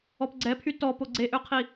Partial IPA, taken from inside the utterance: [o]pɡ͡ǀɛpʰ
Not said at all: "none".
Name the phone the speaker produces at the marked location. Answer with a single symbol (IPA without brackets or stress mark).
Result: ɔ